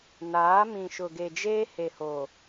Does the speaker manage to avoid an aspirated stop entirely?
yes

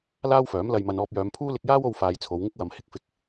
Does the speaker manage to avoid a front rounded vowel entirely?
no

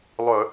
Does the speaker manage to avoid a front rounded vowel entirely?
no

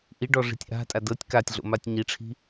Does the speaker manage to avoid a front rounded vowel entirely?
yes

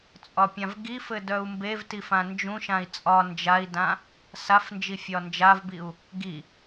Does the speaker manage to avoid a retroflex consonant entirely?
yes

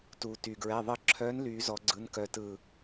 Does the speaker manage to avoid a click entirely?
no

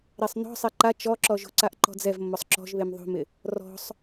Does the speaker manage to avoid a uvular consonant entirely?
yes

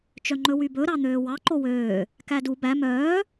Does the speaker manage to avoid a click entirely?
no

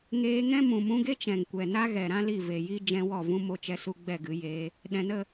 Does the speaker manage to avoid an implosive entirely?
no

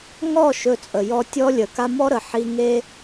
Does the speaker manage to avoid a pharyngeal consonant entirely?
no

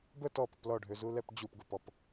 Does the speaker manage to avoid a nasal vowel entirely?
yes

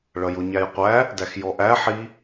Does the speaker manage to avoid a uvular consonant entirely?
no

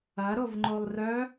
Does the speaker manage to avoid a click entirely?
no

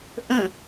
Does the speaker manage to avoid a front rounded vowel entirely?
yes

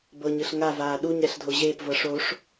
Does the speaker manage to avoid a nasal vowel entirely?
yes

